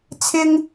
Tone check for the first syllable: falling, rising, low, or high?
high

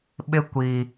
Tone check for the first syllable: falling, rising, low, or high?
high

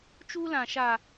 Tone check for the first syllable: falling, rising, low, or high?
high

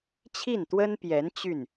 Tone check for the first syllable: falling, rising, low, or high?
falling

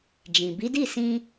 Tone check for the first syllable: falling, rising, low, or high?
low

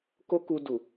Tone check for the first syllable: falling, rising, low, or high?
high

